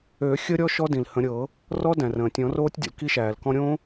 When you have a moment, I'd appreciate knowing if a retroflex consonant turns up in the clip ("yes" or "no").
no